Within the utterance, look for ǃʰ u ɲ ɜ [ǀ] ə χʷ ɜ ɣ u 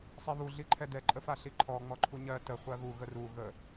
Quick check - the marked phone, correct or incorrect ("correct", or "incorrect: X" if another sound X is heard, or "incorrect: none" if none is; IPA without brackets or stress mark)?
incorrect: t